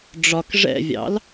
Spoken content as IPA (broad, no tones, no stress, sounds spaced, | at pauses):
ɖ͡ʐ ɒ k ʐ ɛ̰ vʲ ɑ̰ l